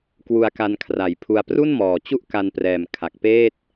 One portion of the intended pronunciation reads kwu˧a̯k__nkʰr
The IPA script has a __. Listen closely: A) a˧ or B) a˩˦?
A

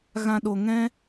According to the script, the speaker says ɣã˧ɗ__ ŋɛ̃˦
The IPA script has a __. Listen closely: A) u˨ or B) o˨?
B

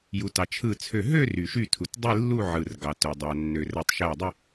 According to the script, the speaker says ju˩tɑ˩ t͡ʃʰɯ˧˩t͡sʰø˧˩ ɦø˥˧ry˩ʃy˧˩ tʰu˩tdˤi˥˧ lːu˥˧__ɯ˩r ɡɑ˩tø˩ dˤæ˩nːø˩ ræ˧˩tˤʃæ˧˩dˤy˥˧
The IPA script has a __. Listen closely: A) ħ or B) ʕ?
B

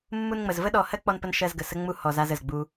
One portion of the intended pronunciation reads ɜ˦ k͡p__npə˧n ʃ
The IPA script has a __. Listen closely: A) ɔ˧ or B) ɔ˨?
A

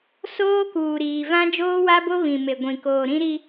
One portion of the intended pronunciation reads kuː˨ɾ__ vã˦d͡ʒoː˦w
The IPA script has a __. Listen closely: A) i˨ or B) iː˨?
B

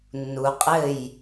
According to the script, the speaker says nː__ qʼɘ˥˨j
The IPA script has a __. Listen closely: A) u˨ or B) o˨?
A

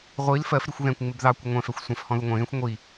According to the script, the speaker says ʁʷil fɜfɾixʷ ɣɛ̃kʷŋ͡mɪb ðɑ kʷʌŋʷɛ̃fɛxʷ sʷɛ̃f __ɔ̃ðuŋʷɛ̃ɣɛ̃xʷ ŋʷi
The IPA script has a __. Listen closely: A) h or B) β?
A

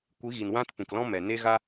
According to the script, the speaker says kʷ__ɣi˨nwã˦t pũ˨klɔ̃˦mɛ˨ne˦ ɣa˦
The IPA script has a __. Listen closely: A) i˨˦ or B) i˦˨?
A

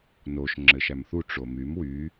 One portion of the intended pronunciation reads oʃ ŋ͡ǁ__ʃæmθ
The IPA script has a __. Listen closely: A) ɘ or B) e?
A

